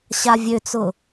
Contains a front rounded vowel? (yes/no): yes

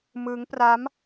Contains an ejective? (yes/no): no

